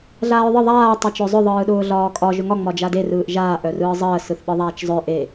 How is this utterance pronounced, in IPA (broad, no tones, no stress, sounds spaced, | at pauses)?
ɮ aː ɹ ðˤ ɯ ðˤ aː tˤ e t͡ʃ œ zˤ œ ðˤ ɯː ɗ ʊː ɮ ɒː kʼ ɒ ʒ ʊ ŋ ɒ ŋ͡m ɒ d͡ʒ a d e r ɯː ʔ ʒ aː ʔ œ r ɯː zˤ əː s ɯ θ ɓ ɯ ðˤ aː t͡ʃ zˤ œ ʔ e